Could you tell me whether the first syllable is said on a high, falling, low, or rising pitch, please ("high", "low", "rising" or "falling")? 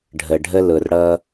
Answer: low